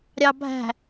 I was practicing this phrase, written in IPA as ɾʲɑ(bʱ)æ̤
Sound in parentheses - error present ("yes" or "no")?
no